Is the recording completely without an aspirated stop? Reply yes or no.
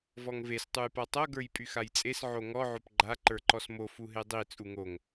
yes